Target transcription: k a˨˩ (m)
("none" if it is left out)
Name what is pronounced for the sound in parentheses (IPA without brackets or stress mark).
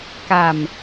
m